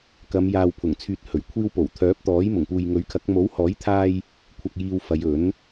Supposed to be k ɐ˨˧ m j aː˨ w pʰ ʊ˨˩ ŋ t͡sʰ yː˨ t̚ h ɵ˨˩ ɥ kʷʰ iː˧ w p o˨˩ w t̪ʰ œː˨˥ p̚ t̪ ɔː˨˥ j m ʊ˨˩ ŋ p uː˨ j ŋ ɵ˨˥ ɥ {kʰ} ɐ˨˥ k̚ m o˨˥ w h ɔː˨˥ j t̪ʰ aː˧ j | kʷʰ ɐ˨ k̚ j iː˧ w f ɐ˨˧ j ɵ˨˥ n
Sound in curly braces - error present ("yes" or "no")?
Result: no